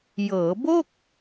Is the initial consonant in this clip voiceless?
no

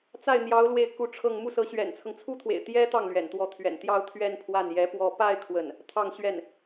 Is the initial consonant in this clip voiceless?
yes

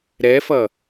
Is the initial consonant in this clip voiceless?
no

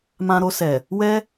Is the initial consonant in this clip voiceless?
no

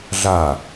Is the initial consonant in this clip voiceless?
no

